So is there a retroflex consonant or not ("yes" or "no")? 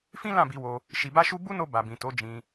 no